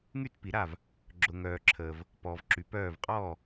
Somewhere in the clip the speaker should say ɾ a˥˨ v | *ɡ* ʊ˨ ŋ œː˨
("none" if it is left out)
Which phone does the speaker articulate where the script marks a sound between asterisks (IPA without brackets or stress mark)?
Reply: ɡ͡ǁ